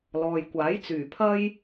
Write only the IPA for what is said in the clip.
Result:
l ɔː˨ j kʷ aː˨˥ j t͡s yː˨˩ pʰ ɐ˥ j

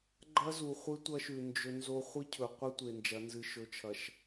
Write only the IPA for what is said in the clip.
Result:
ɡ͡ǃ ɐ˦ z u˨ χʷ ɨ˦ tʷ ɐ˦ ʃ ʉ˨ n d͡ʒ ɵ˦ n z o˦ χʷ ɨ˦ cʰ ɵ˨ qʷ ɨ˦ tʷ e˨ n d͡ʒ ɐ˨˦ n z ɨ˨ ʃ ɵ˨ t͡ʃʰ ɐ˨ ʃ

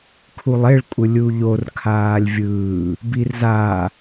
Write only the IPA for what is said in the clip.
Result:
kʰ u lˠ e ɭ kʷʼ ɯ lʲ u ʎ o r kʰ aː lʲ vʲ ɯː | b i r z a

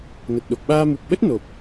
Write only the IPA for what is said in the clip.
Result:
n ə˨˩ t̚ ɗ o˨˩ k̚ ɓ aː˧ m u˨˩ k̚ ɓ ə˦˥ t̚ n o˨˩ p̚

